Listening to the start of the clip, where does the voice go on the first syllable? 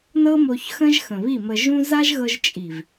high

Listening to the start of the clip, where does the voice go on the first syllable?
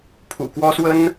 low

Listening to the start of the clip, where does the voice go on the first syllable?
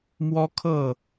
high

